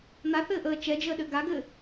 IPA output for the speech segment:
n̪ a θ ɘː ʔ əː t͡ʃ ɛ d͡ʒ əː ɗ ɘ ɡ a ɡ ɘː

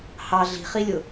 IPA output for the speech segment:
h ɑ ɮ i̤ χ i lʲ ʊ

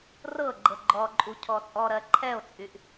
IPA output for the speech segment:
r ɤ ɡ͡ǃ ɤ ɡ͡ǃ ɔ ǃʼ u cʰ ɔ t͡sʼ ɔ ɾ ɜ ǃʰ ɛ o̯ t͡sʼ y ʔ

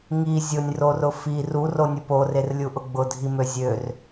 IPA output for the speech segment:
ŋ i zʲ ʊ nʲ r o r ʊ f i r u r o nʲ ʊ p o r e r lʲ u ʔ ʊ ɡ͡b ʊ dʱ i m ø zʲ ø r

